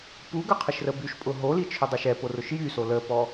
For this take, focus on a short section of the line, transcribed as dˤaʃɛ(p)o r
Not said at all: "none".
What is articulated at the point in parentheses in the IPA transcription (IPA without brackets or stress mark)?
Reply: p